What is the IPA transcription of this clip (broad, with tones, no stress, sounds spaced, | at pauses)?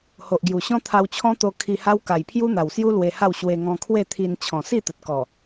h o˨ ʔ ɡ j u˨˩ ɕ ɔ̃˦ t̪ʰ a˧ w t͡ɕʰ ɔ̃˦ t̪ o˧ kʰ i˧ h a˦ w k a˨˩ j pʰ j u˦ n̪ a˨˩ w s j u˦ l w e˧ h a˥˧ w ɕ w e˧ ŋ ɔ̃˧ kʰ w e˥˧ t̪ʰ i˧ n t͡ɕʰ ɔ̃˨˩ s i˥˧ t̪ ə˨ t̚ k ɔ˨˩